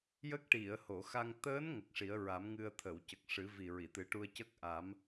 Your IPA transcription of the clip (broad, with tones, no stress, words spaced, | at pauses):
jə˦˥k̚ʈi˨˩˨ə̯ ho˨˩˨xa˧ŋ t̪əː˧˥n ŋə˨˩k̚ʂi˨˩˦ə̯ɹa˨˩˦mŋɨ˧ə̯ t̪ʰə˨˩˨wcə˨˩k̚ʂɨ˨˩˦ vi˨˩ɹi˨˩˨t̪ɨ˨˩˦ ʈu˧ə̯cə˦˥k̚ʔa˨˩˦m